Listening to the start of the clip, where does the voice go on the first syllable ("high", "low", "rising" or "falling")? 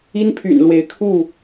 high